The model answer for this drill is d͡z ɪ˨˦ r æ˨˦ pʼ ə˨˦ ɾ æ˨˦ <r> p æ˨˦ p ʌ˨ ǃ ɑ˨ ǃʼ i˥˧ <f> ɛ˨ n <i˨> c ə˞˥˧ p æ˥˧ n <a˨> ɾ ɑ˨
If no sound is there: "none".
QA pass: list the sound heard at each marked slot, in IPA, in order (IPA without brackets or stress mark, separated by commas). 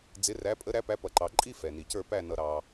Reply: none, f, i˨, ʌ˨